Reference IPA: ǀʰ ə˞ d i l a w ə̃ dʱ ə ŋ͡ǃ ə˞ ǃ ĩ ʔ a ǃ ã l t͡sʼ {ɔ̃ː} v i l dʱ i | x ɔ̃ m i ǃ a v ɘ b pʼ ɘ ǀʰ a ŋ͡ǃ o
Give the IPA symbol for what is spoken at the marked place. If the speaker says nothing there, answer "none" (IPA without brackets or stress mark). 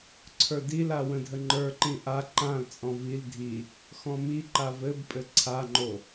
ɔ̃